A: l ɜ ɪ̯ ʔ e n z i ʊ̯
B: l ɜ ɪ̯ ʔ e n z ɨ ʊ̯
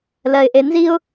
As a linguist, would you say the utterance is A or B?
A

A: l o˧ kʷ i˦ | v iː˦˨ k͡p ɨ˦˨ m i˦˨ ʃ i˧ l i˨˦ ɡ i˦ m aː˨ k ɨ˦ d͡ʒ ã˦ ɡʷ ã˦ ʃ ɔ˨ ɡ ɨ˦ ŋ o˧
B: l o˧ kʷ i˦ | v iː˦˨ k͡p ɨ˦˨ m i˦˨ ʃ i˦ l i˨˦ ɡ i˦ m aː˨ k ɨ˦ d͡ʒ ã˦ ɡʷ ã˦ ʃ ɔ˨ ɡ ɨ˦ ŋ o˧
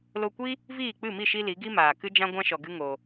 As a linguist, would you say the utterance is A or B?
B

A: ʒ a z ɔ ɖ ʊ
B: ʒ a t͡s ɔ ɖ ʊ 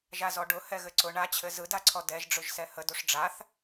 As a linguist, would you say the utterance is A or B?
A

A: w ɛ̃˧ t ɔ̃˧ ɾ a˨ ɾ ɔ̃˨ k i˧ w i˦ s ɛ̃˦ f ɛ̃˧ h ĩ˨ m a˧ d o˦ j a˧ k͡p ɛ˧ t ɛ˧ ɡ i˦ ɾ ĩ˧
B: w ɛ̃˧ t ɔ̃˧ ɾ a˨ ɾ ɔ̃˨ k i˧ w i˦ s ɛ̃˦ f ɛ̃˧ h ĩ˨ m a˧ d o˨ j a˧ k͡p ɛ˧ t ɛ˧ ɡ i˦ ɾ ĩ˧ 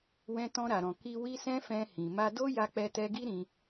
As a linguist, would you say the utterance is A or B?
A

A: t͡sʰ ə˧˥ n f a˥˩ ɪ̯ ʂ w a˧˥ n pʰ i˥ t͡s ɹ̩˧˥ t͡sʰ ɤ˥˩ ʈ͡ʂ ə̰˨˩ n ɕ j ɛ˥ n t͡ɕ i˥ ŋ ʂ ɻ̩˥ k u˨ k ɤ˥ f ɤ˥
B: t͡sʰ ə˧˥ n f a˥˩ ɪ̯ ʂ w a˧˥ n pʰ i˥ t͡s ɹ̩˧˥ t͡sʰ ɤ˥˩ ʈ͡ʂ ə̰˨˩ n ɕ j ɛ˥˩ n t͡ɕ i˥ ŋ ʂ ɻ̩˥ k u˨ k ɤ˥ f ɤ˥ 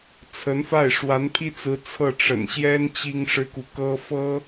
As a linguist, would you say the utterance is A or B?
A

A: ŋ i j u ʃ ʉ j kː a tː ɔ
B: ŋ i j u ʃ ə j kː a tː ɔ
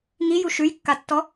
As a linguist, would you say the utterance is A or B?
A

